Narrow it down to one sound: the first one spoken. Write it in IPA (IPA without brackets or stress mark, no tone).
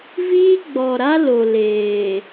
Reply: v